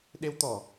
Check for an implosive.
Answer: present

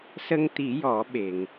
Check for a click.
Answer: absent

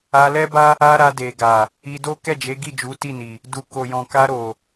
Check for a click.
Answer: absent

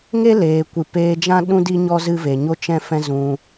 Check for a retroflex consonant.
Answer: absent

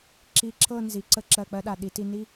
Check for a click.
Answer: present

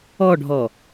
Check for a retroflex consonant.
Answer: present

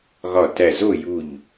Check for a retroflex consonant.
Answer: absent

